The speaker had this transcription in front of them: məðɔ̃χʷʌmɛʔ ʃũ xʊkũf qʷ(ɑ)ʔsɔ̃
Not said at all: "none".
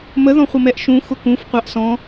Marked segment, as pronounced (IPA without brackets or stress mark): ɑ